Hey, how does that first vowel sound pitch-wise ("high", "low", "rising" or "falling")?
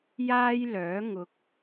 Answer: high